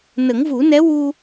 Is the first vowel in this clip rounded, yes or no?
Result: no